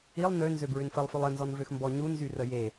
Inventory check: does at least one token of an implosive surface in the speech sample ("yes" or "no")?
no